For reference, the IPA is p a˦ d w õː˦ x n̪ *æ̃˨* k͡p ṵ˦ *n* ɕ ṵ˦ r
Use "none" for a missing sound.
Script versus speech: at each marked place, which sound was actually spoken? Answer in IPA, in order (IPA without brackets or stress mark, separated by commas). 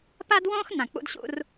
ã˨, d